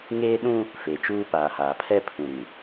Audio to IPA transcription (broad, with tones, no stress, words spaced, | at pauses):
ŋeː˦ɗũ˦ | fe˨t͡ʃuː˦ paː˨haː˨pʰɛ˦ pʰũ˨ɾĩ˨